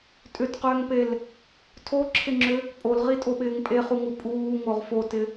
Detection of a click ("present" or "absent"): present